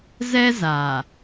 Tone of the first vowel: high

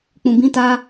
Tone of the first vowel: low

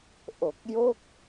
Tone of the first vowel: low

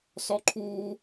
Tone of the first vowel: high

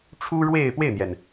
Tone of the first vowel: high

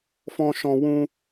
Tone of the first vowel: high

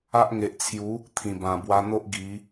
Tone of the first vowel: high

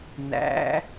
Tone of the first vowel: rising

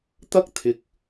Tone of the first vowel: high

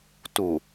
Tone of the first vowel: low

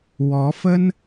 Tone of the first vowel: rising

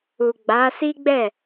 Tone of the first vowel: low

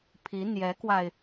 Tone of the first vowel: rising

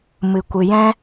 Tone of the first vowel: low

